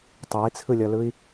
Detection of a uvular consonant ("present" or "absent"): absent